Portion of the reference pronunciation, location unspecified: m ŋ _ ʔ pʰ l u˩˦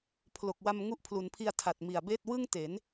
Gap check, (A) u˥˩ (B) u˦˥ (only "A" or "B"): B